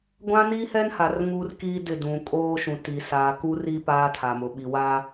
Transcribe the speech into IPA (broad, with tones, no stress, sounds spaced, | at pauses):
ɡʷ ã˦ n iː˦ h ɛ˦ n h a˨ r ŋ uː˦ r k iː˦ d ɪ˦˨ d ũ˨ kʼ oː˦ ʃ ũ˨ t i˨ s aː˨ k u˦ r iː˦ p aː˦ tʰ a˨ m ʊ˨ ɓ i˨ w a˦